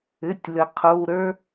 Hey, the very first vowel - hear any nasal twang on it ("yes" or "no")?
no